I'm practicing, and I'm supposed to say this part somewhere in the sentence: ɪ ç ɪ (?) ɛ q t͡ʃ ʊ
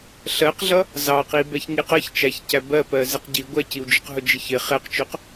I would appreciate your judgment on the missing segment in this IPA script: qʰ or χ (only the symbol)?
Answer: χ